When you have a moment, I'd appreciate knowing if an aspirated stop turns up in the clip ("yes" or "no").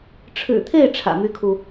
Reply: yes